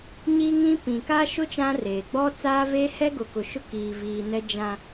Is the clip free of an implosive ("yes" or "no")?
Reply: yes